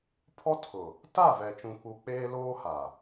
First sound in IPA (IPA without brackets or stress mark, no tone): pʰ